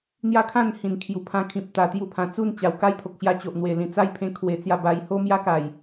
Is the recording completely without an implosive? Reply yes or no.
yes